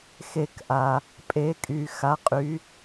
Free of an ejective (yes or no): no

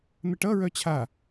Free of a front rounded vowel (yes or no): no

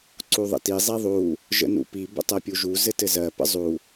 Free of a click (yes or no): no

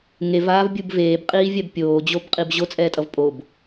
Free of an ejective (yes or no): no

